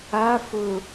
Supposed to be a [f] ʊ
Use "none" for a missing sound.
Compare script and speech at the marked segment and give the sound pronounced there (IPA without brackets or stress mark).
f